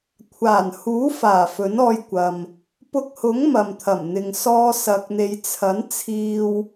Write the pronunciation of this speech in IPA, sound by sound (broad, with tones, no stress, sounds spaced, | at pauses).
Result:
kʷʰ aː˨˩ n h uː˨˥ f aː˨˩ f ɵ˨˥ n ɔː˧ j kʷ ɐ˨ m | p ʊ˧ k̚ h ʊ˨˥ ŋ m ɐ˨ m t̪ʰ ɐ˨˩ m n̪ ɪ˨ ŋ s ɔː˧ s ɐ˧ k̚ n̪ e˧ j t͡sʰ ɐ˨˥ n t͡sʰ iː˧ w